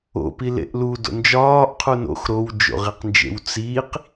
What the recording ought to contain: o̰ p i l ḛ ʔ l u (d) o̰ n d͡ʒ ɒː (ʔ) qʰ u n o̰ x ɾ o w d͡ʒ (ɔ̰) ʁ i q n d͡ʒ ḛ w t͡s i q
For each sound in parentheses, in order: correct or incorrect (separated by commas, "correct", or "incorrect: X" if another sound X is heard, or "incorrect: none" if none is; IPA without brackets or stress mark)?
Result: correct, correct, incorrect: o̰